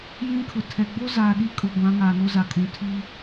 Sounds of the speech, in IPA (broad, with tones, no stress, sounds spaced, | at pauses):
j ĩ˦ kʰ ʊ˨ tʰ ɛ˨ ɡ͡b o˦ z aː˨ ɗ i˦ kʼ ʊ˨ ɡʷ ã˨˦ ŋ aː˨ n o˦ z a˨ kʼ ũ˨ tʰ i˦